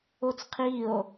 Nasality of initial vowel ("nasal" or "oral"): oral